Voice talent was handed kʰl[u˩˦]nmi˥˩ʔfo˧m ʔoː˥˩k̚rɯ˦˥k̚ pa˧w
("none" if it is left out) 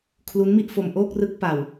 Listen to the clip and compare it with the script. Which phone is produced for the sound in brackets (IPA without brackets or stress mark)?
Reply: u˦˥